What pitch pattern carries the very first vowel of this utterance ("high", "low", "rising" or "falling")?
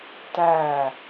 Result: falling